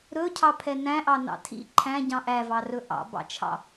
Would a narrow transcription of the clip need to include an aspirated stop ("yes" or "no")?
yes